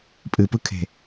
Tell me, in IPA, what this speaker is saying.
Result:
pʼɨpɯkʰe̤

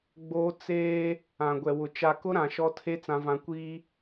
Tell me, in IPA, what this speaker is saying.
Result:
ɡ͡boː˦ t͡seː˦ | ã˨ɡʷɛ˨wʊ˨ t͡ʃa˨kʊ˦ ɾã˨ʃɔ˦tʰe˦ t͡sã˨vã˨ kʷiː˦

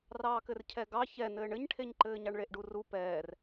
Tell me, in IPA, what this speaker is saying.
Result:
rɑːkɘrcʰɛɡɑ çɛnɘːɳ ɘɲʈʰeɲǃɘːɲɑɳ ɭeʔɖuru pɛːr

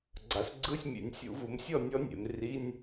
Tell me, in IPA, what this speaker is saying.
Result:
ɡ͡ǀa˩˧sɡ͡ǀɯ˧˥˧sʲ mʲḛ˩˧nʲsʲṵ˧˩˧vu˩˧msʲɔ˥˩ nʲɔ˦˥nʲḛ˩˧mri˧˥˧nʲ

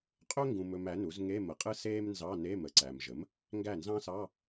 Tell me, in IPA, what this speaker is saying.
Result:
qʼɵ˥ŋɡũ˨mɵ˨m æ˩˥nu˩˥z ŋe˧˥˧mə˩˥qʼɯ˥ seː˥m nzɑ˧˥˧ne˧˥˧mə˩˥ǀæ˨m ʒə˩˥m | ŋɡæ˥˩nzɑ̃˥sɑ˧˥˧

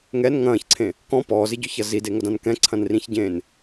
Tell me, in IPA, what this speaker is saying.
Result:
ŋɛn ŋɐ̃ːçǀʰẽ | kɔ̃ pɔːzɪɟʊçɐ zideŋɐdãn kɛ̃ǀʰɐ̃nrĩçɟẽːn

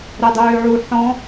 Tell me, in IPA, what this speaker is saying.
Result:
ɾɛdˤøːʕu ħɔ̃

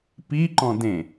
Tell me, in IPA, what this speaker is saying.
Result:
piǃɔ̃ dẽ

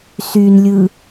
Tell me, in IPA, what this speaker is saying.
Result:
synlʲɯ

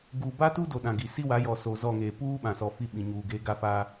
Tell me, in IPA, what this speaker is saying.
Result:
ɡuː˨ba˦ tu˦do˨ ɗã˨ɡi˨ si˦wa˨˦jɔ˨ so˨zɔ˦˨ŋeː˨ puː˦ ɓã˨sɔ˨fi˦ ɓĩ˨ɲuː˨ɡeː˦ ɡa˦faː˦

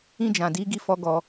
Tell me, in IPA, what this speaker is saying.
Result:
ĩ˧d͡ʒã˨di˨˦ ɡi˧fɔ˧ ɡɔ˧

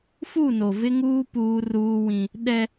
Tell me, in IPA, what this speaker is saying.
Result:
fu˦˨no˨vɪ˦ŋuː˦ puː˦ruː˦wĩ˦ | ɗɛ˦

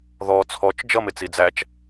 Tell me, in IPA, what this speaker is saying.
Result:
ðɔ t͡sʰɔt͡ʃ d͡ʒʌmɪt͡si d͡zæt͡ʃ

